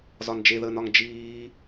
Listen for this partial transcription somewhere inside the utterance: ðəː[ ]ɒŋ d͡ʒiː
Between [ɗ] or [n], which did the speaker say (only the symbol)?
n